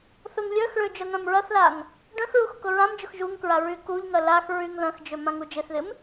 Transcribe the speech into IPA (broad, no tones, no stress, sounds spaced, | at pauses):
θ ʊ ŋ lʲ œ x ɭ ø d͡ʒ œ ŋ œ̃ m ɹ ɐ θ l a ŋ | ɖ œ̃ x ɹ u x k ʊ ɹ ã m d͡ʒ ʊ x ʒ u ŋ k ɹ a ɹ y k u ʎ ŋ ɐ l a x ɹ y ŋ ð ɐ̃ x d͡ʒ ø m ã ŋ u d͡ʒ ɪ θ ð ɪ m